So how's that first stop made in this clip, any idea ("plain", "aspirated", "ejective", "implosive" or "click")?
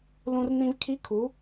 aspirated